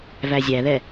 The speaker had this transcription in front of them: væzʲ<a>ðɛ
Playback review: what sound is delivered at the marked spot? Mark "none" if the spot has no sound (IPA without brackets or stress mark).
æ